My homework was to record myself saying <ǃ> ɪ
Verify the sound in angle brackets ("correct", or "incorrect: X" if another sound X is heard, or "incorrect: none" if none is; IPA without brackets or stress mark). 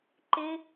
correct